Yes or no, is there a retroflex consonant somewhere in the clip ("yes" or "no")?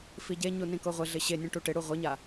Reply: yes